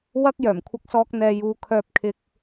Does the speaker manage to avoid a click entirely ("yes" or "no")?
yes